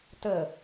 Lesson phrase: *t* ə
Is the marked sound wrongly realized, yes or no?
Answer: no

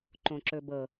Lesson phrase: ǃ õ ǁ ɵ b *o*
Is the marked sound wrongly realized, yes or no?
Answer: yes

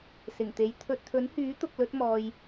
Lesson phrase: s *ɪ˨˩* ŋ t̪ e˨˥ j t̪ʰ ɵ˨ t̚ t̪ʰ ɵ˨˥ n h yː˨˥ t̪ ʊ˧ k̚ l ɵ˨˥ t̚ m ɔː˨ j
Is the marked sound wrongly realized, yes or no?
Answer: no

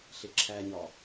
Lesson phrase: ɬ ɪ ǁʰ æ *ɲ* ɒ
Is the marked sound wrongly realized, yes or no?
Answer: no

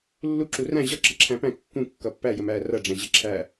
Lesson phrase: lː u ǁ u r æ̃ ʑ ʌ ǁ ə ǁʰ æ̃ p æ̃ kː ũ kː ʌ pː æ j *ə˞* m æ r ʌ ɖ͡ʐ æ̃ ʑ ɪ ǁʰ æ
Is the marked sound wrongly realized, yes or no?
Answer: yes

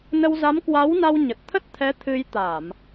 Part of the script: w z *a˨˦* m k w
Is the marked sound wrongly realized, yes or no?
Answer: no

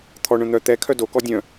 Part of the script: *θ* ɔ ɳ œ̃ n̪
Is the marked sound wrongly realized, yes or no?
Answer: yes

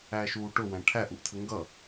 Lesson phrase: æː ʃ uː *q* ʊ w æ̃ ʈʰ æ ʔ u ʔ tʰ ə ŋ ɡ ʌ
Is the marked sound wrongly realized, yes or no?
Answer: yes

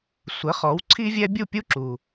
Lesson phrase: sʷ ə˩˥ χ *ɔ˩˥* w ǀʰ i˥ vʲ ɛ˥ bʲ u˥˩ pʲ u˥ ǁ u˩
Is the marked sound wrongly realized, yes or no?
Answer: no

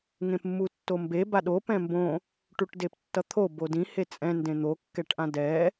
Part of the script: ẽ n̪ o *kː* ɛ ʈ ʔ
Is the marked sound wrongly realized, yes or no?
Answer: no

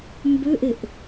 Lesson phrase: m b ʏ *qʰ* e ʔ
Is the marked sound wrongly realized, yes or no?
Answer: yes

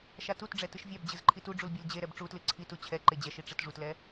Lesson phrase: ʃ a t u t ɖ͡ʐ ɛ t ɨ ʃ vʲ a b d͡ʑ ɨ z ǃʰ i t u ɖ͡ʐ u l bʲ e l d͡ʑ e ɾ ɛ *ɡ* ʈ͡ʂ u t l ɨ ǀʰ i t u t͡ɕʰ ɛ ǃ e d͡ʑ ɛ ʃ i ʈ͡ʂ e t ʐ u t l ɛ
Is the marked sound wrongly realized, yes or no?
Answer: yes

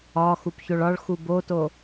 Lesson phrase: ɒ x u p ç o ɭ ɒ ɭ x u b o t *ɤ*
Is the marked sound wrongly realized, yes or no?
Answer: yes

